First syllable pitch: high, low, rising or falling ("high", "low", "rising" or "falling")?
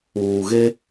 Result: low